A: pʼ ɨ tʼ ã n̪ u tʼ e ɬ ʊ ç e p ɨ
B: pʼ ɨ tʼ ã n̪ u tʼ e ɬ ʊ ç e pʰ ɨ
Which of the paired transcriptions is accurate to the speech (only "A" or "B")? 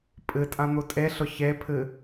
B